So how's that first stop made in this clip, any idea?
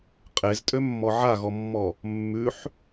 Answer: ejective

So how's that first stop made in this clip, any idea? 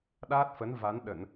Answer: implosive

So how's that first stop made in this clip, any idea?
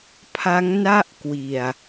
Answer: aspirated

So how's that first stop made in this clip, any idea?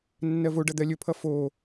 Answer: plain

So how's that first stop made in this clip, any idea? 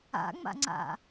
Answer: click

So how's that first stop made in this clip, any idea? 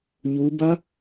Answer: plain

